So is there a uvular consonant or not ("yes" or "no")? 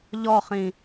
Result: yes